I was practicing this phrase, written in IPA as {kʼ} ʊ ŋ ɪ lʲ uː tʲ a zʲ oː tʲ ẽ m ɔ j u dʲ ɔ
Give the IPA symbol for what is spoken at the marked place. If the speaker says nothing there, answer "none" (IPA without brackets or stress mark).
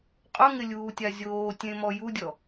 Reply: qʼ